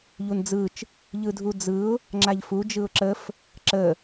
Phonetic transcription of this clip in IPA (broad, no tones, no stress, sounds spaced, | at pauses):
ʎ u n d͡z ɯ t͡ʃ | ʎ ɯ dʱ u d͡z ɯ ʊ̯ | ŋ͡ǁ a ʎ f u d͡ʒ ɯ ʊ̯ ǁ ə f | ǁ ə